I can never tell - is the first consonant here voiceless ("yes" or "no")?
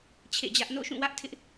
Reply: yes